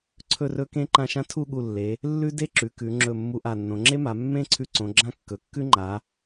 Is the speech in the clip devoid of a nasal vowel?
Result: no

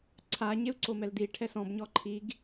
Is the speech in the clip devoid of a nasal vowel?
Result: no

